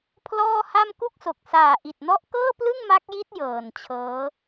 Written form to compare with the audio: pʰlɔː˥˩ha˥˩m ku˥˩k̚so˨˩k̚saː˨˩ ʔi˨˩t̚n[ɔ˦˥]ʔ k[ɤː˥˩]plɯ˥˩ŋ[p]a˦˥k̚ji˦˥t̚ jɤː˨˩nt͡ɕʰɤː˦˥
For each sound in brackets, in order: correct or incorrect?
correct, correct, incorrect: m

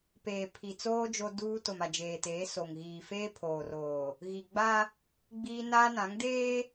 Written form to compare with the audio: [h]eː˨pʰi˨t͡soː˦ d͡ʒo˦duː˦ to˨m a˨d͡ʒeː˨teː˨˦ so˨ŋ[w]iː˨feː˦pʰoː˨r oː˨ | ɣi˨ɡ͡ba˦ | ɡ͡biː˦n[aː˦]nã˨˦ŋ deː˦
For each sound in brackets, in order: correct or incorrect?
incorrect: p, incorrect: ɣ, correct

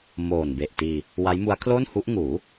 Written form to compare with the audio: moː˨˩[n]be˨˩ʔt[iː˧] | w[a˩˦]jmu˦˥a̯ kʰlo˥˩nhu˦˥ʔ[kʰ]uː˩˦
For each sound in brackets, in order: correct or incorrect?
correct, correct, incorrect: a˦˥, incorrect: ŋ

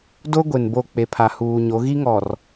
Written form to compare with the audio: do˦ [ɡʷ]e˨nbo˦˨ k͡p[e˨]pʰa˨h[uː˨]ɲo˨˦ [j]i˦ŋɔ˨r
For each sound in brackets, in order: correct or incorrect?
correct, correct, correct, incorrect: ɣ

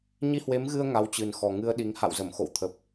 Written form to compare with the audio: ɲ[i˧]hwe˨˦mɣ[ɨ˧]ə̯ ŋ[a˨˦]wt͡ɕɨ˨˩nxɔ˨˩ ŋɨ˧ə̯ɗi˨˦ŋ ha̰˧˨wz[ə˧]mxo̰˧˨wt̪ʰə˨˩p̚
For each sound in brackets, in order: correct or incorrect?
correct, correct, correct, incorrect: ə˧˩

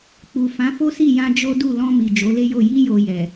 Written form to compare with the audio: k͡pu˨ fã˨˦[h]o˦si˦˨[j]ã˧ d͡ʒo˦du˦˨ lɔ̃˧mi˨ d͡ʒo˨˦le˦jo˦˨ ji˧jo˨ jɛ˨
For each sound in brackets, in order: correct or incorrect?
incorrect: f, correct

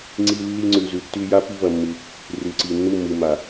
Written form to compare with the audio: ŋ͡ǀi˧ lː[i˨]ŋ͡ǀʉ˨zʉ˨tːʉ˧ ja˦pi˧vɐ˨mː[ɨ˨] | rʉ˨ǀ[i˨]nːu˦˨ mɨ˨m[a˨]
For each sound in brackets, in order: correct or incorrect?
incorrect: i˧, correct, correct, correct

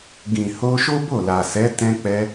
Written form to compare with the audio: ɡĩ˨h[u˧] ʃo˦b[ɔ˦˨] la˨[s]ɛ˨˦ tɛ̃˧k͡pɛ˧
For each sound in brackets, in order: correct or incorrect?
incorrect: o˧, incorrect: o˦˨, correct

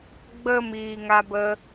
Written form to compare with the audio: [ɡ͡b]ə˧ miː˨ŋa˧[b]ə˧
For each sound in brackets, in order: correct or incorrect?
correct, correct

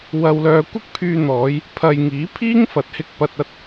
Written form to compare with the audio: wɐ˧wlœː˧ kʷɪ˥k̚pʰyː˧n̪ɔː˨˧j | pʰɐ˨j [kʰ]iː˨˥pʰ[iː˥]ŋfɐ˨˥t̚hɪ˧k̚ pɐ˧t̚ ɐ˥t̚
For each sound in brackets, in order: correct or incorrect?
incorrect: ŋ, correct

